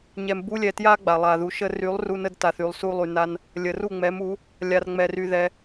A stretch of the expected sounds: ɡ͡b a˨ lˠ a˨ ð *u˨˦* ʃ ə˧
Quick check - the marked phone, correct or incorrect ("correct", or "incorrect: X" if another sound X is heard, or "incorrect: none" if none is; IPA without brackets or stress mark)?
incorrect: u˨